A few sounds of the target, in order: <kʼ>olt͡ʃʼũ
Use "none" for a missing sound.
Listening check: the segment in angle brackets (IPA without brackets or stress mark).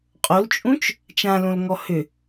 qʼ